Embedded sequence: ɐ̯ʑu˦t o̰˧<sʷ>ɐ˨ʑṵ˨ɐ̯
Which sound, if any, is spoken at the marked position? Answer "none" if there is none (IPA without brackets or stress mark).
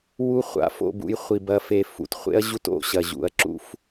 ɕ